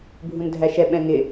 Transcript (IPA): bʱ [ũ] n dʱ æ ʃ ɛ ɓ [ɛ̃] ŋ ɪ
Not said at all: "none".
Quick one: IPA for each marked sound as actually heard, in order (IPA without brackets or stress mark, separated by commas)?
ũ, ɛ̃